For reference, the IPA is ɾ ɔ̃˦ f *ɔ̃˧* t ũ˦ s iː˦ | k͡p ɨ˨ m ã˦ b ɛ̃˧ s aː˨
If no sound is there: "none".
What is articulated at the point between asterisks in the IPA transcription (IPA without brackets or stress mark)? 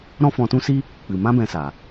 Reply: ɔ̃˧